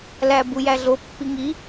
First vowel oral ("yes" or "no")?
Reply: yes